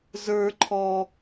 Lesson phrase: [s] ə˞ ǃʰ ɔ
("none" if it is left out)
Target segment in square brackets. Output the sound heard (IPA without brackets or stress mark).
z